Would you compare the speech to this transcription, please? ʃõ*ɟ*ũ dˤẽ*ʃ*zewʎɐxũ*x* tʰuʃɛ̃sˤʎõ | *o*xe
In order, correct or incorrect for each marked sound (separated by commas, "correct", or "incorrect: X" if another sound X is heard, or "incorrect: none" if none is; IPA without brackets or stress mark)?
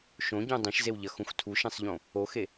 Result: correct, correct, correct, correct